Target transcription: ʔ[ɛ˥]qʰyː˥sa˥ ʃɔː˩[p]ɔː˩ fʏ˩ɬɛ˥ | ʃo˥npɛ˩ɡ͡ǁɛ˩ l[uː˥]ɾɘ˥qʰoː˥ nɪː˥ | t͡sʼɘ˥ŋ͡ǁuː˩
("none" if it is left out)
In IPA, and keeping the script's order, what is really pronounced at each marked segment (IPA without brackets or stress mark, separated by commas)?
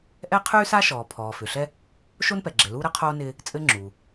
ɛ˥, pʰ, uː˥